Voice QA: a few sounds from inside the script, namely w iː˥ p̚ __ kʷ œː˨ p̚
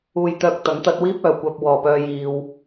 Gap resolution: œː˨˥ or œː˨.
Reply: œː˨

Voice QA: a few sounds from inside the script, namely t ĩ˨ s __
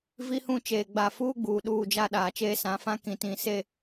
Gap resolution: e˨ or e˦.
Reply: e˨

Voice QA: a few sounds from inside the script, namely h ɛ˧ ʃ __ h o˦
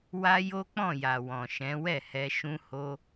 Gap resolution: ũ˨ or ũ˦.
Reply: ũ˦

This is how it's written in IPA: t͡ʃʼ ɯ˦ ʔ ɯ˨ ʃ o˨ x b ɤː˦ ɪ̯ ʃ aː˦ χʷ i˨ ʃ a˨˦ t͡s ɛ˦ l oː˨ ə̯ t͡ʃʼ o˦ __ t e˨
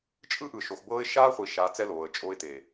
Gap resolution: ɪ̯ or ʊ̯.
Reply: ɪ̯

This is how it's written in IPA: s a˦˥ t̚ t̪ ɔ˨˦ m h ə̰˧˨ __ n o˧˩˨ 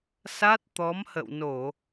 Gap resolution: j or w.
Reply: w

